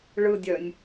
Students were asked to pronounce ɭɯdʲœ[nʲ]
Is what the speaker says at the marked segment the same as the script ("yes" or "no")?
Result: yes